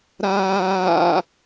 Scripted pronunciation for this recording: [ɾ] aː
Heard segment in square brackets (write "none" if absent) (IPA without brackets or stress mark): ɾ